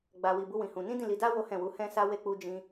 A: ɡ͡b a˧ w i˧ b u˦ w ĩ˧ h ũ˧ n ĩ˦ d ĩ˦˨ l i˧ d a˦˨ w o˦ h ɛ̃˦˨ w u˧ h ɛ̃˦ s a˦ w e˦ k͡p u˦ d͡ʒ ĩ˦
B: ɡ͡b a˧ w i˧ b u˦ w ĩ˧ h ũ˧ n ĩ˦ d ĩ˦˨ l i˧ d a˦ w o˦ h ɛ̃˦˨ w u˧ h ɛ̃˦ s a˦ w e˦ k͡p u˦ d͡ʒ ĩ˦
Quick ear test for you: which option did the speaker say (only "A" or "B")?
B